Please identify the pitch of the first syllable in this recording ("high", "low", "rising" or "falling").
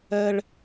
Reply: high